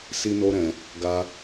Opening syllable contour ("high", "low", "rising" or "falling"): high